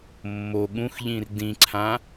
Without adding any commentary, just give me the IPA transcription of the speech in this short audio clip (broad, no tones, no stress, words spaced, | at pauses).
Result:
mːo ɠũxʎĩr dĩǀʰã